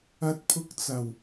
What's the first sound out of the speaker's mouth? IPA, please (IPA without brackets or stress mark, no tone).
ɐ